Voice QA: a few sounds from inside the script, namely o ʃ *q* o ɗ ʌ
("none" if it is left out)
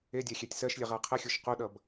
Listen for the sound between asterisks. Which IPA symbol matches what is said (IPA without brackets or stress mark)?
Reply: q